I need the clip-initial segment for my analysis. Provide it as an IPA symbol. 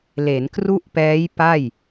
l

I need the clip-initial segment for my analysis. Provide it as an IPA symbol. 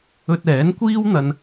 ɵ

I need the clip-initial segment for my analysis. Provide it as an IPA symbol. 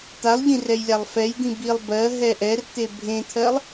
t̪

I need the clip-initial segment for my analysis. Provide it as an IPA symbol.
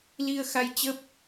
l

